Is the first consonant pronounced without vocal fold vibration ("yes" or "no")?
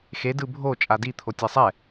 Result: yes